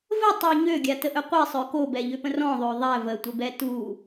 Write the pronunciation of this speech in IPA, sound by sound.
v ə tˤ y ɲ ø ɡʲ a t ə ʔ œ qʷ i sˤ œ k o b ɛ ʎ ø p ə̃ r ɔ̃ ðˤ ø ðˤ ɛ v ə tʷ ə b ɛ t u

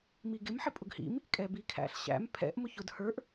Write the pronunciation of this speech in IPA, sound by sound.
m i ɡ ɪ m ħ ɪ pʼ ʊ ɡ h ḭ m | kʼ ɛ b i kʰ æ̰ ɬ ɕ æ̰ m pʰ ɛ̰ ʔ m ʊ ç ʊ d h ə˞ ʔ

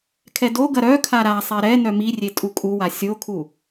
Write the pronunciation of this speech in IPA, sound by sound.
kʰ ɛ d o ɡ ɐ ɾ œ kʰ a ɾ a sˤ ɛ ɾ ɛ n œ m i rʲ e tʼ u kʼ u w a sʲ o kʰ u

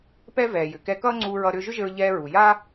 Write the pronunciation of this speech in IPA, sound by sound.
p ɛ˥ v ɛː˩ j ʏ˩ k ɛ˧ k ʌː˥ ŋ͡ǀ uː˧ ɹ ʌ˧ ɾ ʏː˧ ʒ ʏ˥ ʒ ɘ˧ ɹ ʎ ɛː˧ ɹ u˩ j a˥

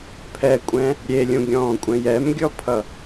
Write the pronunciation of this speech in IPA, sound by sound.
pʰ ɛ kʷʼ ɛ̃ | ɾʲ e lʲ ũ ɡʲ ɔ̃ː kʷʼ ɛ̃ j ɛ m ɡʲ ɔ pʰ ʌ

